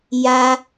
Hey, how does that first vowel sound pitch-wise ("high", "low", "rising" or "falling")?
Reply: high